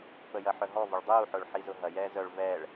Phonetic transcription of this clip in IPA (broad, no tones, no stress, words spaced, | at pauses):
pəjɐħœɦɔ vʊɭdˤuːħʊːɭ ħizʊɦɐjɛː zœɭ vɛɭ